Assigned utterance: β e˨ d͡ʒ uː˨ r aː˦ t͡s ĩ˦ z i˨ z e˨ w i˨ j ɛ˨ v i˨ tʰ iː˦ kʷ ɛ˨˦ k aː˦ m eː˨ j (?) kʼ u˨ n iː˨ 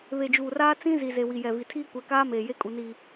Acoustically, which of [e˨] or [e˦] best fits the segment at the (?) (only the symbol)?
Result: e˦